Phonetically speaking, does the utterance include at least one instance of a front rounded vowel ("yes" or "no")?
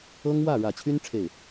yes